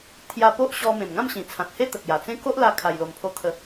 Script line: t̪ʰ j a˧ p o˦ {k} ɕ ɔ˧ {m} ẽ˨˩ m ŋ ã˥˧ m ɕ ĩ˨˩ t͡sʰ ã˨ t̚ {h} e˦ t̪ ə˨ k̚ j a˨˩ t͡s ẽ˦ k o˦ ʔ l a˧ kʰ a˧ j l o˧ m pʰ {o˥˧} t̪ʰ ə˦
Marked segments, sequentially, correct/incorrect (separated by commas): incorrect, correct, correct, correct